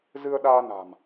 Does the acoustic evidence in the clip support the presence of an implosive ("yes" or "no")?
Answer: yes